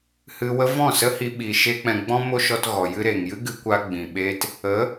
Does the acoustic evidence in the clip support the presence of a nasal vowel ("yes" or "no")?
yes